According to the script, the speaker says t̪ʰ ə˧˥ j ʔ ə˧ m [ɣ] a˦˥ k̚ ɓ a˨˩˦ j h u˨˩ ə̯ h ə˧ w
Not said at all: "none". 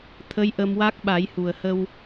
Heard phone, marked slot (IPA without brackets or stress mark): w